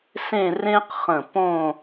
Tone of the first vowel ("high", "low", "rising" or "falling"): falling